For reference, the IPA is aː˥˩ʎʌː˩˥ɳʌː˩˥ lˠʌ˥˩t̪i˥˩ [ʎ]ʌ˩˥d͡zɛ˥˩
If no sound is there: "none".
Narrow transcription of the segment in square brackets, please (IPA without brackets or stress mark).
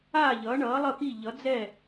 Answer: ʎ